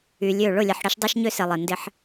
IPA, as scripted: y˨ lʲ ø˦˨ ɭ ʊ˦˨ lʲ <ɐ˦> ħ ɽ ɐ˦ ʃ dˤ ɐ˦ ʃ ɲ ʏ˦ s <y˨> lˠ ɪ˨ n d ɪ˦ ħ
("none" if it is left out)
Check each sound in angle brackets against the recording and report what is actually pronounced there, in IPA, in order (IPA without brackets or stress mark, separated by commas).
ɐ˨, ɪ˨